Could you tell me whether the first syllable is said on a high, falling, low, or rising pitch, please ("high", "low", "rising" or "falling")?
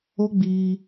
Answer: high